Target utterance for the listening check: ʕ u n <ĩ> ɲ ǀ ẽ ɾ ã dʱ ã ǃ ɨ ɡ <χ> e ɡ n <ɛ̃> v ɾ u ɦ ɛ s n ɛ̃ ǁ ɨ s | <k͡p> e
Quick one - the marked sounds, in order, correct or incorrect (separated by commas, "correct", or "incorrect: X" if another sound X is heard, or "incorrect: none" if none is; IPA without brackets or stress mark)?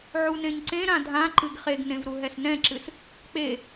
incorrect: ẽ, correct, incorrect: ẽ, correct